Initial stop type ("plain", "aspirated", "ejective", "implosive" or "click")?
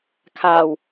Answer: aspirated